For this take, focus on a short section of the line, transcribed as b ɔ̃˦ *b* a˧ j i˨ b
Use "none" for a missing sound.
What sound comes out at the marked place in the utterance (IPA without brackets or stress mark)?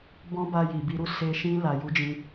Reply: b